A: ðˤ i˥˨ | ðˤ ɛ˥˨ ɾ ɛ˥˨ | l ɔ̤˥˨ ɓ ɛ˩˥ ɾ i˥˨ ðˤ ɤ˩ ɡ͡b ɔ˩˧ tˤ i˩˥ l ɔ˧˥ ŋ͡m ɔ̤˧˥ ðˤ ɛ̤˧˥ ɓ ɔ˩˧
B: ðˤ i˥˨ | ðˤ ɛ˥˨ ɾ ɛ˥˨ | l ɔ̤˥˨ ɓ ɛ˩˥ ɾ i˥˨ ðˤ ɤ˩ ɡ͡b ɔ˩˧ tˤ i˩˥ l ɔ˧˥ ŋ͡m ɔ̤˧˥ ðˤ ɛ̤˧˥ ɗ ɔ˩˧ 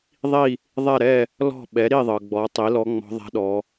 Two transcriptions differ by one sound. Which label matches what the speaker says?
B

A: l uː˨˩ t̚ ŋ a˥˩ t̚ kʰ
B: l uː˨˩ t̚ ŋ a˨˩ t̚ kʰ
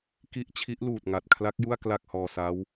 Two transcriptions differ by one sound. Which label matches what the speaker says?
B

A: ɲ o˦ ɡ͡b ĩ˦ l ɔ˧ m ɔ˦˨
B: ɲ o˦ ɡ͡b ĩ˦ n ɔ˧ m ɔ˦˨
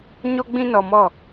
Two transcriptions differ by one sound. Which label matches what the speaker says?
B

